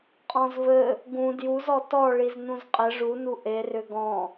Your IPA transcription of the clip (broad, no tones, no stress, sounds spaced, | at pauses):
qʼ ɔ̃ z v ɘ | ɡ ũ d j u z ɔ t ɔ ɭ i z n ũ z qʼ ɘ ʐ u n u ʔ e r ʏ ɡ ɔ̃